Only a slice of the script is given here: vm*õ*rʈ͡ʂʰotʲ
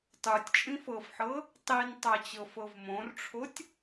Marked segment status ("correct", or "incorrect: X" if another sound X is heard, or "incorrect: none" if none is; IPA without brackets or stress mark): correct